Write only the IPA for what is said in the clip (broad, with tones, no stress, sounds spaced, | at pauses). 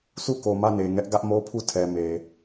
sʰ u˦˨ k o˨ m ä˦˨ n e˨ ŋ ɛ˦ ʔ ɡ ä˦ ʔ m o˦ pʰ u˦˨ tʰ ɛ˨ m e˨